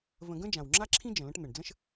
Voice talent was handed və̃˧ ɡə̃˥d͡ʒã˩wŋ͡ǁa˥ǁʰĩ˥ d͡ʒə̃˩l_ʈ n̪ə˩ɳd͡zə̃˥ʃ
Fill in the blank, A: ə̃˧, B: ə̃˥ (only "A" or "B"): B